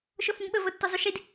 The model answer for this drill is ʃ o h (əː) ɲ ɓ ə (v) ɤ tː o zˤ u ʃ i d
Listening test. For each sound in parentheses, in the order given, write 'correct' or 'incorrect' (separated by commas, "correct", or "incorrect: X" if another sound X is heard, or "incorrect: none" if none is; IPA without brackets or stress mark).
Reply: incorrect: ə, correct